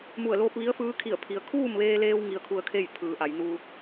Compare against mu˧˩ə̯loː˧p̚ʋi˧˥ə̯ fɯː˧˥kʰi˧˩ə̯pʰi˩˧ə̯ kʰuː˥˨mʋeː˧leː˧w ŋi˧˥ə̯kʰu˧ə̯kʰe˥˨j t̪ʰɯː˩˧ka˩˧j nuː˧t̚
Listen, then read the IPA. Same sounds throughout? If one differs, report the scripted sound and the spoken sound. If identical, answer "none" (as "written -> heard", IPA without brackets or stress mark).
k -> ʔ